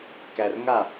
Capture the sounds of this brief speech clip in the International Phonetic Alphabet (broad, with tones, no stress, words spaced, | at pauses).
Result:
kæ˨rŋa˥˩